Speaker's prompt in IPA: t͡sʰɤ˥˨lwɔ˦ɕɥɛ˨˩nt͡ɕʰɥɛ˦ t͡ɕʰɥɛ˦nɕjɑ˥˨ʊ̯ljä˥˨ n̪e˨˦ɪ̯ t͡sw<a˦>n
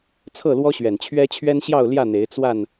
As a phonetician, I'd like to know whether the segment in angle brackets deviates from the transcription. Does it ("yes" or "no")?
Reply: yes